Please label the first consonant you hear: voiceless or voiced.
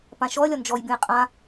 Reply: voiceless